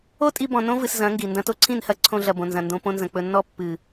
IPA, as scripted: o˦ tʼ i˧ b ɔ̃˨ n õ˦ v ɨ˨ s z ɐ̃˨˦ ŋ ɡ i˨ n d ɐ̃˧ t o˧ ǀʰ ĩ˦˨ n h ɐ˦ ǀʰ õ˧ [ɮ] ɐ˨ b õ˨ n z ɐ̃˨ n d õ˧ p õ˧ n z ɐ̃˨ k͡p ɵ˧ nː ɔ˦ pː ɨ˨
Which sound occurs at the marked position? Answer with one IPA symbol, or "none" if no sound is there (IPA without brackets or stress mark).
ɮ